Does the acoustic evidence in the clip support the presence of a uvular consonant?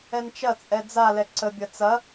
no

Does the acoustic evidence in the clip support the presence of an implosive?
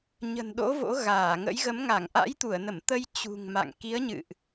yes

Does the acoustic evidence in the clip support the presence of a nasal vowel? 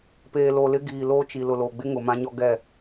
yes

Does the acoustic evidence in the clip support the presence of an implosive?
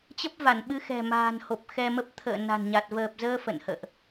yes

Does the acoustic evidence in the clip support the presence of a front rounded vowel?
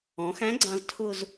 no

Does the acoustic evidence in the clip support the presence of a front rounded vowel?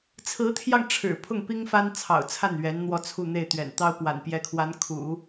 no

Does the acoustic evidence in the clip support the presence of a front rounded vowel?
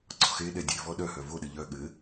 yes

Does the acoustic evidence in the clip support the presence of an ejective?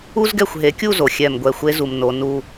no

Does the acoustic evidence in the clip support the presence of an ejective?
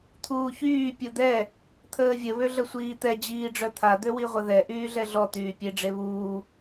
no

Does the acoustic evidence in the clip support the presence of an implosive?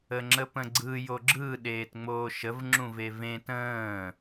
yes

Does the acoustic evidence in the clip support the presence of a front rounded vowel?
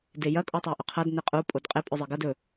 no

